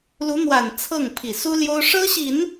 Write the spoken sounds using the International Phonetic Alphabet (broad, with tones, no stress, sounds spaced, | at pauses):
l u˧˥ n̪ w a˨˩ n t͡sʰ ɤ˥˩ ŋ pʰ i˨˩ s u˥ l j o˥ ʊ̯ ʂ ɤ˥ ɕ i˨˩˦ n